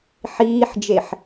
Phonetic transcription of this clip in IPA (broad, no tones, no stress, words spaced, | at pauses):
ħiːħd͡ʒeħ